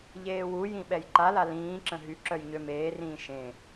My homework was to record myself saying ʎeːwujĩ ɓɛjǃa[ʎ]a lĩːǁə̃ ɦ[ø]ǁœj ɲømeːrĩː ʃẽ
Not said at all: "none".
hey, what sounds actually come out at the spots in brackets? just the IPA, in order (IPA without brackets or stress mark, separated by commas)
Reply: l, y